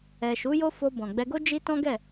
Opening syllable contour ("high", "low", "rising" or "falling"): low